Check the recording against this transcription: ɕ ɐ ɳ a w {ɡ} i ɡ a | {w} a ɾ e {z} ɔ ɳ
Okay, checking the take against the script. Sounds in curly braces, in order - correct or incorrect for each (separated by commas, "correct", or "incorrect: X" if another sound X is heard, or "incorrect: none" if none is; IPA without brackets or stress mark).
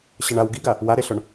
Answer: correct, correct, incorrect: ɬ